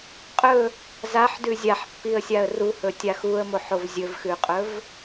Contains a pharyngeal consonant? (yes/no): yes